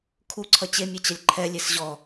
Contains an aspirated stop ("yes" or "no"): yes